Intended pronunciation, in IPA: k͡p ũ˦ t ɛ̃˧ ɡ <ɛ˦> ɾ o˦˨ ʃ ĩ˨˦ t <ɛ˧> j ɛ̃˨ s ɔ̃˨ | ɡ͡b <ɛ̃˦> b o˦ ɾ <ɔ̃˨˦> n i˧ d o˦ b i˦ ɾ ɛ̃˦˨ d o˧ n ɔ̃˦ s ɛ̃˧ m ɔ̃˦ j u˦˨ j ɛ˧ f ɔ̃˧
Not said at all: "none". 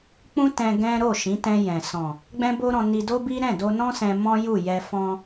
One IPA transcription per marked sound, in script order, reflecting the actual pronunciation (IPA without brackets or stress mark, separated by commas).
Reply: ɛ̃˦, ɛ̃˧, ɛ̃˦, ɔ̃˧